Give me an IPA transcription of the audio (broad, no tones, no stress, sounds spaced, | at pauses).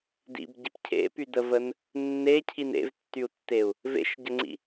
d ḭ b ɟ i p cʰ ḛ p y d ə v ə n | nː e cʰ i n ḛ v tː y u̯ tː e u̯ | v ḛ ʃ ɟ ə ŋ͡ǀ ḭ